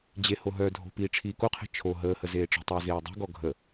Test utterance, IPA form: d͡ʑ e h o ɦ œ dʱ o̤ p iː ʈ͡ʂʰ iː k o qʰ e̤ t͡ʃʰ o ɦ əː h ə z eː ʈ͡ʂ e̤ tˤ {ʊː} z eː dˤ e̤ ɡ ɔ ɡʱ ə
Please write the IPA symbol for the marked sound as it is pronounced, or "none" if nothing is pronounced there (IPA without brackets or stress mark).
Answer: əː